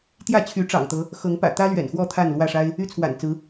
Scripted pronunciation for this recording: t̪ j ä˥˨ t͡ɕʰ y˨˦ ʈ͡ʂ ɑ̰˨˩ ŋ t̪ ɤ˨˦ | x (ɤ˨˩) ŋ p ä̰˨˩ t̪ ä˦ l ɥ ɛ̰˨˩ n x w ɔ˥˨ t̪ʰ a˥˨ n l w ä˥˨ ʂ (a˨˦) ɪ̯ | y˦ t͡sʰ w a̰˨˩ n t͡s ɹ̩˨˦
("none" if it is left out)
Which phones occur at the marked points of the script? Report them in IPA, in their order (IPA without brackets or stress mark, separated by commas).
ɤ˨˦, a˦